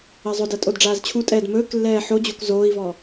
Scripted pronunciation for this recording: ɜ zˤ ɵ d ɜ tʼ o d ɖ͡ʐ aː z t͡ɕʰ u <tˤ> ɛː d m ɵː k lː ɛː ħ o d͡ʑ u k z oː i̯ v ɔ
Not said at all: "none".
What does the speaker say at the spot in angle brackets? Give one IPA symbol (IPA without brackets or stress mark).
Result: tʼ